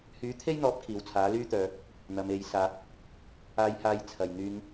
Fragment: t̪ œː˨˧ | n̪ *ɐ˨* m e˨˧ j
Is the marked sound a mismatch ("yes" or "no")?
no